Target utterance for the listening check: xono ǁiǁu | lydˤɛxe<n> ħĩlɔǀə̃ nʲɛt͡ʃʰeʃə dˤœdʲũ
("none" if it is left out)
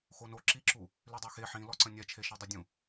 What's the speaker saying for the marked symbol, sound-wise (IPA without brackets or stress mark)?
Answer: none